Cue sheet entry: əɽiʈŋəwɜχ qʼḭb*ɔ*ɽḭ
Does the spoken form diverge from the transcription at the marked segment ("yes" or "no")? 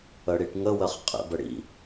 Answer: yes